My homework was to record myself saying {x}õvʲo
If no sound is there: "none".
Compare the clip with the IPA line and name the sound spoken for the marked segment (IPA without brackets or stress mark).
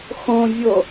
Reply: x